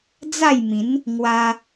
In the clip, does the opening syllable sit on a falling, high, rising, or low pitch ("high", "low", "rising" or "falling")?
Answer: falling